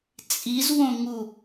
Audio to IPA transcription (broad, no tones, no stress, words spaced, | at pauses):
t͡sʼizwõŋu